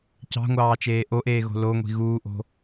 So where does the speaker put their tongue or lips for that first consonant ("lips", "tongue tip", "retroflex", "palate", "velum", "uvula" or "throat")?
palate